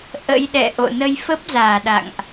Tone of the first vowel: rising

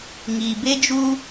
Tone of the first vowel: low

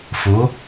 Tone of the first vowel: rising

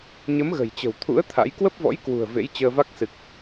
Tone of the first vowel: rising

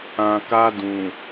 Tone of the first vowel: low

